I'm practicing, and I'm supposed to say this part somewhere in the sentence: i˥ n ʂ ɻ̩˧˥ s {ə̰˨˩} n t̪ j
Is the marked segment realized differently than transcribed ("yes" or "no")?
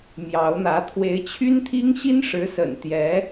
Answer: no